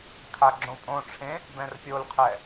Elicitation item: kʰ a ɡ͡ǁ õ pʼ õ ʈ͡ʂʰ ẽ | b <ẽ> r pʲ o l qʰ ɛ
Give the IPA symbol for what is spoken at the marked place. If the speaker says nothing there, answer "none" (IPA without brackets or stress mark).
ɛ̃